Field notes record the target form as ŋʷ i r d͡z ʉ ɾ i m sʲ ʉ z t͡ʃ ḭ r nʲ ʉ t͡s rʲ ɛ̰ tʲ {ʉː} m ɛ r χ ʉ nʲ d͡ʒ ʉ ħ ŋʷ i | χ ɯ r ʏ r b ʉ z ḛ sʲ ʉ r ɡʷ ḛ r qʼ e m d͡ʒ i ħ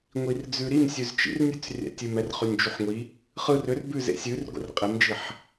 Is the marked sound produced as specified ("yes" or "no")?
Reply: no